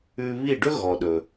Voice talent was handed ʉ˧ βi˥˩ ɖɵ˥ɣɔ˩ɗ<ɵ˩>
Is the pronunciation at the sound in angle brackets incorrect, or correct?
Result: correct